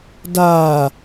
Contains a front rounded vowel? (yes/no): no